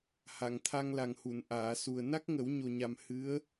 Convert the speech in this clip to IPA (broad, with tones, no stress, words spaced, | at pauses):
ha˨˩˨ŋt̪ʰa˧ŋla˨˩ŋhu˨˩˨n ʔaː˨˩˨su˨˩ə̯ na˦˥k̚ŋə˨˩˦wɲo˨˩ɲa˨˩m hɨ˧˥ə̯